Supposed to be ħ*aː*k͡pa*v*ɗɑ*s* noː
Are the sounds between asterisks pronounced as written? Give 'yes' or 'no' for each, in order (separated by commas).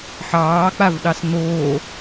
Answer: no, yes, yes